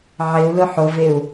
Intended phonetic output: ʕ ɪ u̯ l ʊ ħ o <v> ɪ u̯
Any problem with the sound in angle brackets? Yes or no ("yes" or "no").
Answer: no